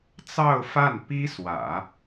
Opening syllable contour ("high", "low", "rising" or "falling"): falling